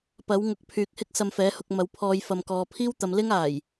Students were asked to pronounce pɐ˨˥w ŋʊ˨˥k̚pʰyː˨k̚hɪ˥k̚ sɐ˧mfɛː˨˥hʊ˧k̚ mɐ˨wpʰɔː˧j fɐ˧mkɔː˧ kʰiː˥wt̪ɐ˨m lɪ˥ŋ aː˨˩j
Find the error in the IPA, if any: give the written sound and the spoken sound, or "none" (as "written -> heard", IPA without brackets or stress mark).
kʰ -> pʰ